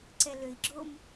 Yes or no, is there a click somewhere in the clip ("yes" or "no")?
yes